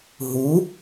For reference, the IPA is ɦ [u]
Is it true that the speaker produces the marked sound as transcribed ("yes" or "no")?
yes